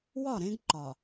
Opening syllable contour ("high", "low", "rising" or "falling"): falling